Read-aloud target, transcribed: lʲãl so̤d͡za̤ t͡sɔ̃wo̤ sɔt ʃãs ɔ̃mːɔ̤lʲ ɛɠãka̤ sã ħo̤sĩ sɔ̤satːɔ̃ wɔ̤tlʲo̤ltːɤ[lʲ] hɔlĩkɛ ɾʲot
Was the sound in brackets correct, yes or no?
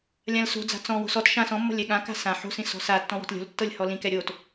yes